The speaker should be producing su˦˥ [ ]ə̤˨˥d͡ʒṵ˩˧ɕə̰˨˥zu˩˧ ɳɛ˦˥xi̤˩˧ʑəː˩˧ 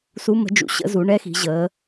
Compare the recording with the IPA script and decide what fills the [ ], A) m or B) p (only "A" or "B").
A